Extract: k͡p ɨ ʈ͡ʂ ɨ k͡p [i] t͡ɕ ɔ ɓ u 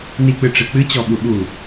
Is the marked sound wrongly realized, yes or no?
yes